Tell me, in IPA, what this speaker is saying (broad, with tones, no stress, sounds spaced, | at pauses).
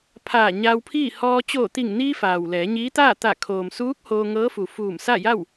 pʰ aː˧˩ ɲ a˧ w pʰ iː˥˨ h ɔː˧ t͡ɕ oː˧˩ t̪ i˧˩ ŋ n iː˧ f aː˩ w l ɛː˩˧ ɲ iː˧˥ t̪ aː˥˨ t̪ a˧˩ kʰ oː˩ m s uː˧˥ k̚ h oː˧ ŋ ɤː˧˥ f u˩ f uː˧˩ m s a˥˨ j a˥˨ w